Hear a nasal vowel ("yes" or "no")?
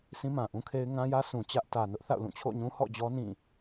yes